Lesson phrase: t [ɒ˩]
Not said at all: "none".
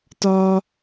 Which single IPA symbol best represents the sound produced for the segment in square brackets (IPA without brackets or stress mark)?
ɒ˥